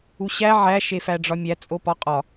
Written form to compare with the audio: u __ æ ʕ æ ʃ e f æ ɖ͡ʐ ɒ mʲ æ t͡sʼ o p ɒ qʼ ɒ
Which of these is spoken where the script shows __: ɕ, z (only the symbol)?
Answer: ɕ